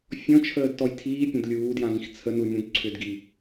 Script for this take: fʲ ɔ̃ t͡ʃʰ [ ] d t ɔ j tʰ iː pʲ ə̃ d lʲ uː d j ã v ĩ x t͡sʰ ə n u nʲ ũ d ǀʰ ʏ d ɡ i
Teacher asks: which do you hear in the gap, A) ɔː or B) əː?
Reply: B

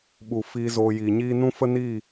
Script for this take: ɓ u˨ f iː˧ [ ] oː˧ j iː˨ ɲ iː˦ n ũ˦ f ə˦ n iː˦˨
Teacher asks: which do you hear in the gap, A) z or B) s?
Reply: A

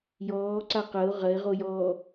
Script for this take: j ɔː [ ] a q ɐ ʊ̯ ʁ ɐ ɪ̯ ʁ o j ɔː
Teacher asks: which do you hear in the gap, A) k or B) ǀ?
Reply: B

